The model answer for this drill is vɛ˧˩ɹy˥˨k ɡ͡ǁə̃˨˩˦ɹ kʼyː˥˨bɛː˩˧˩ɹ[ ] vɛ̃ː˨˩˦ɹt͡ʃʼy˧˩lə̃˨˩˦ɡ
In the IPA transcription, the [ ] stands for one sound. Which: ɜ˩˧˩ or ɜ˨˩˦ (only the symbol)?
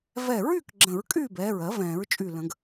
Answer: ɜ˨˩˦